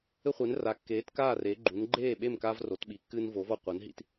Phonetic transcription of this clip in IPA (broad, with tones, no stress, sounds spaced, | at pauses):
ɘ˥ χʷ e˨˥ n r a˨˥ kː eː˨˥ t k aː˥˨ r e˨˥ ɡ͡ǃ u˨˥ n ɡ͡ǃ eː˥˨ ɓ e˥˨ m k aː˥ v r o˨˥ t ɓ i˨˥ kː ɨː˥ n v o˨˥ v ɔ˥˨ qʷ ɐ˨˥ n ɦ ḭ˨˥ t